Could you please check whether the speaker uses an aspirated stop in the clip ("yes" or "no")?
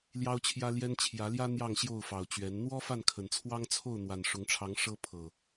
yes